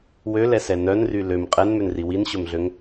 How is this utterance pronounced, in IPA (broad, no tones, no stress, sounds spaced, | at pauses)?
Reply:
w ø l ɛ s ɛ n œ n r y l ø m qʼ ɛ n m ø n r i w i n ɕ ɵ m ɮ ø ŋ